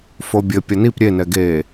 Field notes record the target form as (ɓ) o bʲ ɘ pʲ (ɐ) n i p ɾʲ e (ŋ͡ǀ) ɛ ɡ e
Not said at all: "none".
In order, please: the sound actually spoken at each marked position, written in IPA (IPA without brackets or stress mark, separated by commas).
f, ɐ, n